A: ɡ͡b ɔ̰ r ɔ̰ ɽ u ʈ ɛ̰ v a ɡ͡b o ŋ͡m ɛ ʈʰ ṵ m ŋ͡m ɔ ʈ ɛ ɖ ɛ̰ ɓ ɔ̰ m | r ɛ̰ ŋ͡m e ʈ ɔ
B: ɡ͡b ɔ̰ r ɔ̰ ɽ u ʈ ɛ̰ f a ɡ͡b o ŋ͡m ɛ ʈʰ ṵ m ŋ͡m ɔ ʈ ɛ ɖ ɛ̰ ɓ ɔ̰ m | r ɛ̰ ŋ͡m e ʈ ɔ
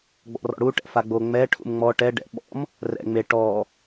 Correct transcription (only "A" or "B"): B